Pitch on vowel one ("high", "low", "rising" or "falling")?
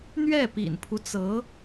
falling